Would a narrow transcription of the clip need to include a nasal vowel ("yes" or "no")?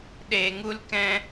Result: yes